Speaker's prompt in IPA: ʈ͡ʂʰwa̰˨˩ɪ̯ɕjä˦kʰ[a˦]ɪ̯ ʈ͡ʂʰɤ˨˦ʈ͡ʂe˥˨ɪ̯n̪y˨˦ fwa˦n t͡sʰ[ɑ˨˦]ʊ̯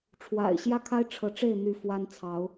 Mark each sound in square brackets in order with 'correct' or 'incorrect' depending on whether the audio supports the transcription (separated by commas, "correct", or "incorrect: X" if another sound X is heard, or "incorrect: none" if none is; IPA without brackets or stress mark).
correct, correct